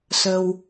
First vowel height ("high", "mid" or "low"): mid